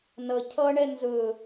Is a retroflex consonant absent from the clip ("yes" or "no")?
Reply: no